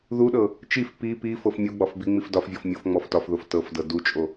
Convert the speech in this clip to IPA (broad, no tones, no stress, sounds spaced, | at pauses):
ð u ɗ ɤ | t͡ʃ i f p i p i f ɤ f mʲ u ɡ͡b ɒ f b i ŋ͡m i f d ɒ f vʲ ɤ f mʲ o f ŋ͡m ɔ f t ɒ f ð o f t ɤ f d ɤ d u t͡ʃʼ o